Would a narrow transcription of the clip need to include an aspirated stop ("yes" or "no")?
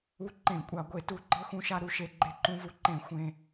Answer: no